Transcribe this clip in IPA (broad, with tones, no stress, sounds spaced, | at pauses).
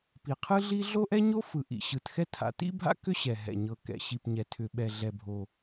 p i˨ qʰ ɯ˥ ɮ i˥ ɮ o˥ ʔ ɛ˥ ɲ o˥ f ɯ˨ ʔ ḭ˨ ɕ ɯ˨ t x ɛ˥ tʰ a̰˨ t ḭ˥ bʱ a̰˥ k ʏ˥ ɕ ɛ˨ ɦ ɛ̰˨ ɲ ɤ˨ k ɛ̰˨ ɕ i˨ p ɲ ɛ˨ tʰ ʏ˨ ɓ ɛ˨ ɮ ɛ˨ bʱ o˨